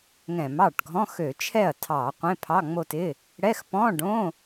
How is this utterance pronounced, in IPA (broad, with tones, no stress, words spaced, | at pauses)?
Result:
ŋɛ̃˧˩˧mɑ˥˩ʈɡʱɔ̃˧˥˧x ø˧˩˧t͡ʃʰɛ˥˩ɐ̯ tʰɑ˧˩˧ qʷẽ˧˥˧pʰɑ˧˥˧ŋ͡mo˥˧tɪ˧˥˧ | ɽɛ˧˥˧x pɔ̃˧˥˧ɖõ˧˥˧